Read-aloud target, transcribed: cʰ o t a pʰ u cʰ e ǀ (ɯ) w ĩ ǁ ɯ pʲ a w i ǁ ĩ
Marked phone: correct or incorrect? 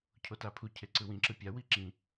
correct